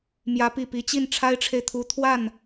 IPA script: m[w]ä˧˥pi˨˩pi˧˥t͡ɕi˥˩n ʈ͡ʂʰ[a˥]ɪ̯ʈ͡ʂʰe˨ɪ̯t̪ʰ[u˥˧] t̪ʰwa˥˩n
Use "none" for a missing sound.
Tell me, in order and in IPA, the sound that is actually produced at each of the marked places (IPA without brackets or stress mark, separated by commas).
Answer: j, a˥, u˧˥